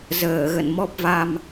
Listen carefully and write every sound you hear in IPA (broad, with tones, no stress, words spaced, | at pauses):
zəː˧˩ɣə̰˧˨n mɔ˦˥p̚va˧m